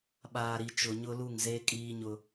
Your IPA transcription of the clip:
ɓ aː˨ ɾ i˨ t͡ʃ ʊ˨ ɲ ʊ˦ l u˦˨ ŋ z eː˦ kʼ iː˦ ɲ ʊ˦

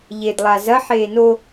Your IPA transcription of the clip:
ʎ e d lˠ a z ɐ ħ eː n o

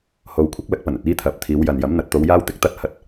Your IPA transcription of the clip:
h o˨ w kʷʰ ɪ˥ k̚ l ɐ˨˥ k̚ p ɐ˨˩ n ɵ˨ t̚ iː˥ t̪ʰ ɐ˨ p̚ t̪ʰ iː˨˧ w j ɐ˨ n j ɐ˨˥ m n̪ ɐ˨ t̚ t̪ o˨˧ w j aː˥ w t̪ ɪ˥ k̚ t̪ ɐ˥ t̚ h ɐ˥ t̚

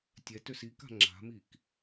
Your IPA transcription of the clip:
tʲ ɛ t ø s i k a̤ ŋ͡ǁ a̤ m i k

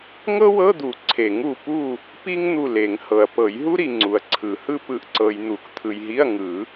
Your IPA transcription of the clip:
ŋ ɤ˥ w ɤ˧˥˧ d̪ u˨˩˦ ǀʰ e˨˩˦ ŋ u˨ p u˦˨ | p i˥ ŋ n̪ u˦˨ l e˨˩˦ ŋ h ɤ˨ ɐ̯ p ɤ˨˩˦ j ɦ u˥ ɾ i˨ ŋ͡ǀ u˨ ɐ̯ ǀʰ ɯ˨˩˦ h ɯ˥ p ɯ˨ ʔ ǀ ɤ˨ j n̪ u˨˩˦ k t̪ʰ ɯ˨ j ɦ i˧˥˧ ɐ̯ ŋ ɯ˨˩˦

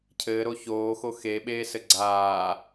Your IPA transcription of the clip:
cʰ ɘː ɾ o ç oː x o x e ɓ eː s ɘ ɡ͡ǀ aː

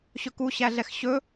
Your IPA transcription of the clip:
ɕ ɵ k u ɕ æ ɮ ɛ x ɕ ɵ

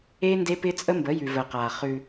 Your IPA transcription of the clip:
eː˦ n d e˦ p ɪː˦ t͡sʼ ə˦ m b ə˨˦ j ʉ˨ v əː˨ q aː˨ χ ʉ˦

